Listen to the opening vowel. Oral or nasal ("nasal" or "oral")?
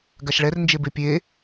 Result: oral